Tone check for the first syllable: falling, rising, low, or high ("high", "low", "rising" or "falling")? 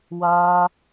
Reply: high